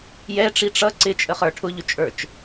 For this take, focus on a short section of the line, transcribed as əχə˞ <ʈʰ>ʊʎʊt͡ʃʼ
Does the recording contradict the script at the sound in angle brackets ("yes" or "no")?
no